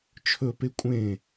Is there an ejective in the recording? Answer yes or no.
yes